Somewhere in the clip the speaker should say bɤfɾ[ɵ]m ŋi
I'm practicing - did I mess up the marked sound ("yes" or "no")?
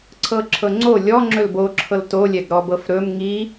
no